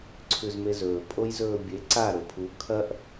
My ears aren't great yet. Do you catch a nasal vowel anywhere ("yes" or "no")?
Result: no